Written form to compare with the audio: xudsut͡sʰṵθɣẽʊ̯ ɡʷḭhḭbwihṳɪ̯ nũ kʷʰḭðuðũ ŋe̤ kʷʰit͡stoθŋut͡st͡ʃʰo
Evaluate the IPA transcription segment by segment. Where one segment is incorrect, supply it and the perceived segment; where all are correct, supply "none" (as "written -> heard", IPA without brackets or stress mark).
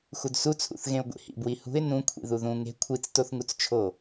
none